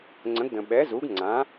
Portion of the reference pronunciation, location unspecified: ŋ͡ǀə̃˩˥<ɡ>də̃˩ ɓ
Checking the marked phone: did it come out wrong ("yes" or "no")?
no